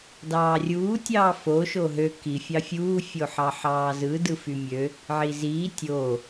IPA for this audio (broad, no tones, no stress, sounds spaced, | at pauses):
d ɑː rʲ uː tʲ ɑː f o ʃ o ɦ ø k i fʲ ɑ fʲ uː fʲ o ħ ɑ ħ ɑː z ɯ d ɯ f y mʲ ø | ʕ i z iː tʲ o